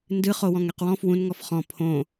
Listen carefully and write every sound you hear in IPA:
n d ɨ χ o w ɔ̃ ŋ ɛ q w ɔ̃ f w ũ n ŋ ɔ f χ ɔ̃ pʰ õ

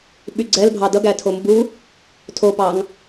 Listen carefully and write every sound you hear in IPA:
ɓ y ɡ͡ǀ ɛ l bʱ ɑ d ʌ ɡ æ tʰ o m b u | tʰ o p ɑ ŋ

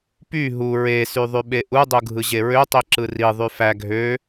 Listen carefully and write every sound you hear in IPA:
p y ɦ u ɹ e s y ðˤ y ɓ e ʔ u dˤ u ɡʱ ɯ ʑ e ɹ ø tˤ i ǁ ɯ r i ðˤ y f æ ɡʱ ø

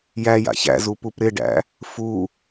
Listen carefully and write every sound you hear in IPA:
j æ j a̰ ç æ̰ z u p u p ɾ ɪ ɖ æ̰ | f u

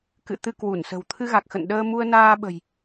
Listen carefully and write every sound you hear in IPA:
k ɨ̰˧˨ t̪ ɨ˧ k w u˧˩ n s ə̤˨˩ w t̪ʰ ɨ˧ ɣ a˨˩ k̚ x ə̰˧˨ n ɗ əː˧ m u˧ ə̯ n aː˧ ɓ ə̤˨˩ j

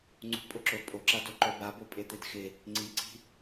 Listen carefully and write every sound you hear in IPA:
ŋ͡ǀ ṳ pʼ ʊ ǁ o pʼ o ǁ a d o ǃ œ b a b o pʼ e t̪ e d x ɪ | ŋ͡ǀ i ǀ i̤

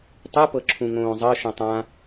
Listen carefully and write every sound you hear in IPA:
tˤ u p ɤ ǁʰ ũ ŋ õː zˤ ɤ ʃ õ tˤ ã

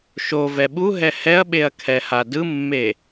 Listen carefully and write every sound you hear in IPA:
ʃ o v ɛ ɓ u ɦ ɛ h ɛ ɐ̯ ɓ e ɐ̯ kʰ ɛ h a d ɯ mː e

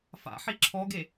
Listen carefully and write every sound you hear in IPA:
f a̰ ħ i ǁʰ ɔ ɡ e

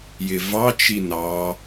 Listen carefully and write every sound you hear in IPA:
j ɪ v ɑ t͡ʃ i n ɑ

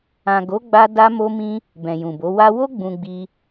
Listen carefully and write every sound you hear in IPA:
ã˨ ɡ o˨˦ ɡ͡b a˧ d a˦ m o˦ m ĩ˦ | b ɛ̃˨ j ũ˨ b o˨˦ w a˧ w o˦ ɡ͡b ũ˧ ɡ͡b i˧

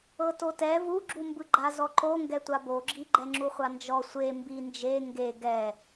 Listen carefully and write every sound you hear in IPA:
ɤ t o t ɛ v u ɡ͡ǁ u m b ɯ ɡ͡ǃ a z ɔ ǃ o ŋ ɡ ɛ tʷ a b o ɡ͡ǁ i ɡ͡ǃ ɛ ŋ͡ǁ u χʷ a n d͡ʒ ɔ sʷ e m b i n d͡ʒ e ŋ ɡ e ɡ ɛ

